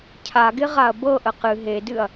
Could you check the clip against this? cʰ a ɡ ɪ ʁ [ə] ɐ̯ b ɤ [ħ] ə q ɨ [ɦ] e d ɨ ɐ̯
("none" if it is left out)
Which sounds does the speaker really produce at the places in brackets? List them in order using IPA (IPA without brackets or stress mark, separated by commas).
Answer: a, ʔ, ɦ